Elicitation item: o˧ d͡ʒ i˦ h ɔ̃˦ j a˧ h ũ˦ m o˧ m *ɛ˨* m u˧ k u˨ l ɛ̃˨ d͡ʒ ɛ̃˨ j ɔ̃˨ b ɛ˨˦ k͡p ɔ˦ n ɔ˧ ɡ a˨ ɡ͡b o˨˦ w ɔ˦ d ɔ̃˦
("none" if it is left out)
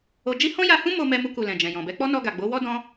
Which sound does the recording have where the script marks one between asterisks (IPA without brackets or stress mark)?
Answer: ɛ˧